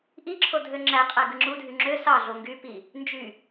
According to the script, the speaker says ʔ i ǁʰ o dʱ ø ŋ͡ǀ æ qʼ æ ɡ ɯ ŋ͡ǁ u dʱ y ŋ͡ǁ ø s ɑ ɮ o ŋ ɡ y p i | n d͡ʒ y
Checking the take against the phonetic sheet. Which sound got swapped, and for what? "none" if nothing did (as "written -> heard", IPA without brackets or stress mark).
ŋ͡ǀ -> ŋ͡ǁ